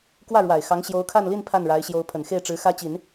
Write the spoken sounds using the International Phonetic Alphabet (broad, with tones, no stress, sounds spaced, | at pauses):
k w ä˥˩ ɻ w a˨˩ ɪ̯ x ɑ˧˥ ŋ ɕ j o˧˥ ʊ̯ kʰ a˥˧ n l i˥˧ n pʰ a˥˩ n ɻ a˧˥ ɪ̯ ɕ j o˧˥ ʊ̯ pʰ ə˨˩ n x e˥˩ ɪ̯ ʈ͡ʂ ɻ̩˧˥ x ä˥ t͡ɕ i˨˩˦ n